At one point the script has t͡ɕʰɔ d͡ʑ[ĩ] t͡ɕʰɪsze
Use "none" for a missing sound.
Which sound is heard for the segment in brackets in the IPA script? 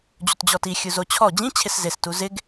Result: ĩ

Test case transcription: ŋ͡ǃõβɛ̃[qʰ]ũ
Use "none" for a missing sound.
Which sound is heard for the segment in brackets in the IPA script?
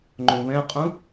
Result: qʼ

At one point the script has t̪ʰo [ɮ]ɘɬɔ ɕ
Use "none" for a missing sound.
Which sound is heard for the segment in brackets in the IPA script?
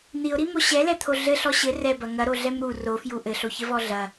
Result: ɮ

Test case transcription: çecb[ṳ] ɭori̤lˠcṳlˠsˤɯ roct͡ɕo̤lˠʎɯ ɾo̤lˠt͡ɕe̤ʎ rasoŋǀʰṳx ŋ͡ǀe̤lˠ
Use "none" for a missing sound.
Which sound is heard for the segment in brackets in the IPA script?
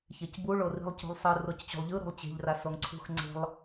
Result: u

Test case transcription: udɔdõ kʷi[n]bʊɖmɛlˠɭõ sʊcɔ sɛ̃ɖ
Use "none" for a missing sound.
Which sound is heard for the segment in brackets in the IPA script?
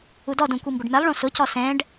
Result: m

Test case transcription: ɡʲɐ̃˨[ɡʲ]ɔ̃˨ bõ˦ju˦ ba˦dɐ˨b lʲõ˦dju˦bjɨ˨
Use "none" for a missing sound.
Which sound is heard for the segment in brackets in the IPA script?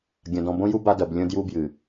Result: d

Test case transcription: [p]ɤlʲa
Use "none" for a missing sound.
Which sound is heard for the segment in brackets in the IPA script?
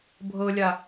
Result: bʱ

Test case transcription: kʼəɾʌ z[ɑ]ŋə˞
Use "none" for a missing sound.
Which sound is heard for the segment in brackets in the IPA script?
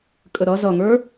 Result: ʌ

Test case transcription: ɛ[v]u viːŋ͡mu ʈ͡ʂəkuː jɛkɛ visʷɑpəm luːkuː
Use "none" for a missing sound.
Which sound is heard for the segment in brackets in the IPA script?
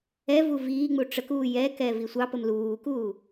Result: v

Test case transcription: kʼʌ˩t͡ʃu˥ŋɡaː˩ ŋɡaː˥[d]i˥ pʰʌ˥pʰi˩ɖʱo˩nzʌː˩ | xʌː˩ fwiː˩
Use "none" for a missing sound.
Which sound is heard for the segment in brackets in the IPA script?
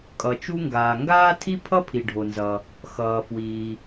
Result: tʰ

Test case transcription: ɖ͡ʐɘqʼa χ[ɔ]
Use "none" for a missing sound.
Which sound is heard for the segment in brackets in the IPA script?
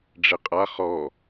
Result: ɔ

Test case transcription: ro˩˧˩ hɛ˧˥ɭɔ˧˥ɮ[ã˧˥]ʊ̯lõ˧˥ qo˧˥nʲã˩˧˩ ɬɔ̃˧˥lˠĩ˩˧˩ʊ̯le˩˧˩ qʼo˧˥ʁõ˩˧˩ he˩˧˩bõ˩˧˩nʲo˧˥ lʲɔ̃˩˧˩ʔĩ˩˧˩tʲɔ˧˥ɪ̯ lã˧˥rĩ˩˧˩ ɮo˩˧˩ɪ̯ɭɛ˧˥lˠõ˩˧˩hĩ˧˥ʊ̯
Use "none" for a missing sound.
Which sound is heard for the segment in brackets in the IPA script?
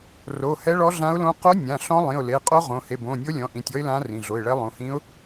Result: ã˧˥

